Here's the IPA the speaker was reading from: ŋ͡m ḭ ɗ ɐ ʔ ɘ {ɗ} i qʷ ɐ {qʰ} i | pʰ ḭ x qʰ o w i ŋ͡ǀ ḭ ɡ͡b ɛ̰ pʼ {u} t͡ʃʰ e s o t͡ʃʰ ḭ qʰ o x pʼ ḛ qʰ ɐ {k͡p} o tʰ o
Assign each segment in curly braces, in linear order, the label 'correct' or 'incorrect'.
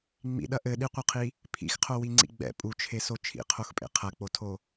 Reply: correct, correct, correct, correct

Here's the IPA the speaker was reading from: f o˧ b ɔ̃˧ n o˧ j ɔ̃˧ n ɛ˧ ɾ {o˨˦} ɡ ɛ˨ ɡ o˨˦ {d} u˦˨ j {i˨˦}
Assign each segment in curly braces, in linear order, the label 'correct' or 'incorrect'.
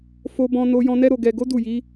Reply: incorrect, correct, correct

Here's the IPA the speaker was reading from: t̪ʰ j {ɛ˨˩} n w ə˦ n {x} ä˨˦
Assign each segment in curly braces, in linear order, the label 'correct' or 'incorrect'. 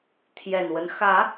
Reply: correct, correct

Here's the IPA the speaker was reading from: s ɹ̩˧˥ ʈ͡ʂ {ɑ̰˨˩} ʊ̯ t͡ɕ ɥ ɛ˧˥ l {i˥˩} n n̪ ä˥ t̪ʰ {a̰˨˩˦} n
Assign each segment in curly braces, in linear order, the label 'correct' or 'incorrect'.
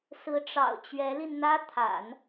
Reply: correct, incorrect, correct

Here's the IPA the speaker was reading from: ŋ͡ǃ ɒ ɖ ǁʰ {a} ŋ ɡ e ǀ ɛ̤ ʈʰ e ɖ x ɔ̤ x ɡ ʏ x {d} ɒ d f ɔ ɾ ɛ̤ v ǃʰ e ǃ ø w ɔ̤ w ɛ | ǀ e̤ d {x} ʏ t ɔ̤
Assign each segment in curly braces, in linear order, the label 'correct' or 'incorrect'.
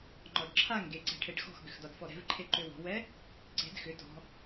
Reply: correct, correct, correct

